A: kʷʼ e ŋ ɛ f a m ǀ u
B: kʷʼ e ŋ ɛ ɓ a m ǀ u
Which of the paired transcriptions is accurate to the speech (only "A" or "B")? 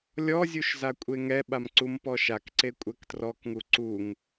B